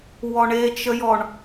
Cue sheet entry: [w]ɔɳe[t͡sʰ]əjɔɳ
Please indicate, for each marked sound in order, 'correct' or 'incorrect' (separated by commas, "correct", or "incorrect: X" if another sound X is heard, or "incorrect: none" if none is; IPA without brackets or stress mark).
correct, incorrect: t͡ʃ